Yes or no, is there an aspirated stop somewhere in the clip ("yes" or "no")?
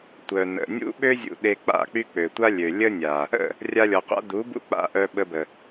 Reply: no